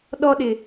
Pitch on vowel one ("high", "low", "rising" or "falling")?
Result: high